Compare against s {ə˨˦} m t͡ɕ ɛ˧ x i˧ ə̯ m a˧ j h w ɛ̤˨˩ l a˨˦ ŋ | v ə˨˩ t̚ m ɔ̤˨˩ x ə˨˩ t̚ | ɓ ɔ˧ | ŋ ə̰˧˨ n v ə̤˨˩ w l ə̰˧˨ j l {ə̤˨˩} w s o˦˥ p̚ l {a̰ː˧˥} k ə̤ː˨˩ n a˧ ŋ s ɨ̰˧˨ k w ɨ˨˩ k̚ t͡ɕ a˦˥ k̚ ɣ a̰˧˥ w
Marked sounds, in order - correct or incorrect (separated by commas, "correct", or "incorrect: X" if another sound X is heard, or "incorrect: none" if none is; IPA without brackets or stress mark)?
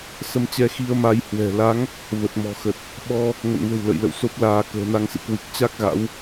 incorrect: ə˧, incorrect: ə̰˧˨, incorrect: aː˧